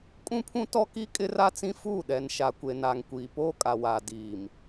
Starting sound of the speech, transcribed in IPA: kʼ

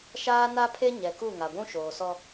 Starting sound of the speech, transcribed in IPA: ʃ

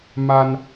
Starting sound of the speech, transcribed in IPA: m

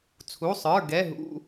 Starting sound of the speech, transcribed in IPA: t͡sʰ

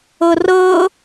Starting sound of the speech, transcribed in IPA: ɤ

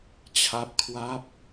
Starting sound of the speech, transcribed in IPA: t͡ɕʰ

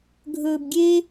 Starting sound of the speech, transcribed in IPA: ɡʱ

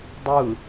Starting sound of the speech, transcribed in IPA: dˤ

